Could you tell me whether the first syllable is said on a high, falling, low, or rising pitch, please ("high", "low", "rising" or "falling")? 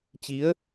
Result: rising